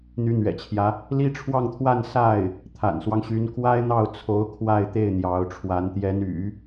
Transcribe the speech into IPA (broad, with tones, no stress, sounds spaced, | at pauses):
n̪ y˧˥ n̪ ɥ ɛ̰˨˩ t͡ɕʰ j ä˦ | l i˥ ʈ͡ʂʰ w ɑ˥˧ ŋ t̪ʰ w a˥˧ n s a˥˩ ɪ̯ | t̪ʰ a̰˨˩ n s w ɑ˦ ŋ ɕ y˧˥ n k w a˥ ɪ̯ n̪ ɑ˥˩ ʊ̯ t͡sʰ o˧˥ ʊ̯ kʰ w a˥˧ ɪ̯ t̪ e˥˩ ɪ̯ n̪ j ɑ˧˥ ʊ̯ ʈ͡ʂʰ w a˧˥ n t̪ j ɛ˧˥ n y̰˨˩˦